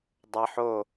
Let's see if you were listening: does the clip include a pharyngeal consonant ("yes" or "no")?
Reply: yes